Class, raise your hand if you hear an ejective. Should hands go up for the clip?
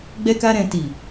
no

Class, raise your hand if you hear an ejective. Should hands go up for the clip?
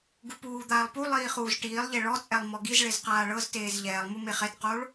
yes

